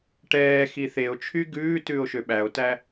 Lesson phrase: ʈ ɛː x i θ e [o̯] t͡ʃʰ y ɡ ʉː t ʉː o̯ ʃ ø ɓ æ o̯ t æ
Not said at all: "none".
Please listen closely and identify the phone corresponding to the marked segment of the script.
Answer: o̯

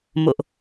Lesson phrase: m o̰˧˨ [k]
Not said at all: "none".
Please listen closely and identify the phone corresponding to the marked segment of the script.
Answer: ʔ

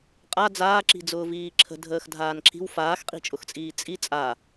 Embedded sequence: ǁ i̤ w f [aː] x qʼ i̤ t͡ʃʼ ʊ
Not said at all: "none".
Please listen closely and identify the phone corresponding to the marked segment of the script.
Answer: aː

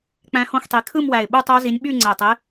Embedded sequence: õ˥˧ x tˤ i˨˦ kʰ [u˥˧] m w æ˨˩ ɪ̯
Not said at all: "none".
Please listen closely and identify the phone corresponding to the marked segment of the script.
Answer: ɯ˥˧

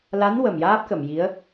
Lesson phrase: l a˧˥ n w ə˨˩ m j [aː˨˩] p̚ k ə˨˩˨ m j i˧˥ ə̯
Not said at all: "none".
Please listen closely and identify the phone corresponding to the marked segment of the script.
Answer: aː˦˥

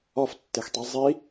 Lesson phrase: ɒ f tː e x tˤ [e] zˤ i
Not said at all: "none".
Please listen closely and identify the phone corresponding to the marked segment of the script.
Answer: i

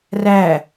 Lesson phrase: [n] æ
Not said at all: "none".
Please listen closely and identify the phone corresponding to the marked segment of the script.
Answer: r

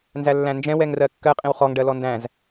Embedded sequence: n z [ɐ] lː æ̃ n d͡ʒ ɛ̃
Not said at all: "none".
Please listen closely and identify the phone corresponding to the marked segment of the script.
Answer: æ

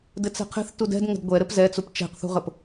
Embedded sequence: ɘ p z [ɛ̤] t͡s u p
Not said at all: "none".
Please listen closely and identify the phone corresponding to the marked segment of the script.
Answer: ɛ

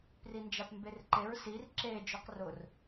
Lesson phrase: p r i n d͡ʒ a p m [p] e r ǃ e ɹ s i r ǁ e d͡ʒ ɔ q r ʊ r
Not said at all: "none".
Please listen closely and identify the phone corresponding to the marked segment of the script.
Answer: b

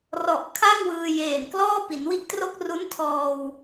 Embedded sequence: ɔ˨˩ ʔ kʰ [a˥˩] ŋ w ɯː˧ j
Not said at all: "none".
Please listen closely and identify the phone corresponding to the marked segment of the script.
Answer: a˥˩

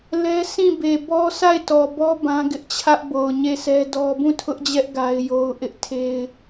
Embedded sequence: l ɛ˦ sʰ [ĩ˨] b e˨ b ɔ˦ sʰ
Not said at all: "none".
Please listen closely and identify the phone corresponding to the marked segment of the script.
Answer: ĩ˦˨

